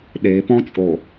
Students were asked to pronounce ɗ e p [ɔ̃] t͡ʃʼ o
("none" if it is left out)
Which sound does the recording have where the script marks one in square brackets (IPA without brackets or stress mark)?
ɔ̃